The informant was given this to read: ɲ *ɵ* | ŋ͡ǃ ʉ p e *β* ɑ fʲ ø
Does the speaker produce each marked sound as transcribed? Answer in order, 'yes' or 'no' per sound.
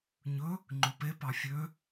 yes, no

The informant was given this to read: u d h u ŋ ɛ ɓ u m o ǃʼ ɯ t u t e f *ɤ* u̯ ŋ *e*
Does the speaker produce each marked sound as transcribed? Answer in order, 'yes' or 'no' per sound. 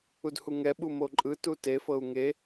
yes, yes

